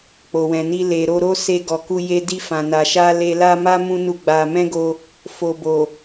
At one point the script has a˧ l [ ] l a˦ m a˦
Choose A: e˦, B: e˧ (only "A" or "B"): B